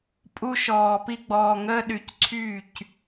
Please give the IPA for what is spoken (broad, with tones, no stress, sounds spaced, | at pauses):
pʼ u˧ ʃ ɔː˨ p i˧ ɡ͡b ɔː˨ ŋ əː˧ ɗ y˨ c ǀʰ yː˦˨ c